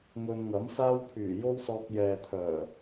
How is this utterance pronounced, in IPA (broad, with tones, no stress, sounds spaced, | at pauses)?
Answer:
ŋ ɵ˧ n ŋ ɐ˨˥ m s aː˥ w pʰ yː˨˩ j o˥ w s ɔː˧ k̚ j ɛː˨ t̪ʰ œː˨˩